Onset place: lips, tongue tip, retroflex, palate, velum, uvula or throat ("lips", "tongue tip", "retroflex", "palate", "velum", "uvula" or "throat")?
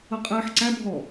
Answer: uvula